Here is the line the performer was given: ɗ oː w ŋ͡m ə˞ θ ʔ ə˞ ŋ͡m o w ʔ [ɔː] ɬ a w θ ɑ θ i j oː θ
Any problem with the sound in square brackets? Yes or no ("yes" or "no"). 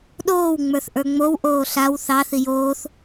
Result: yes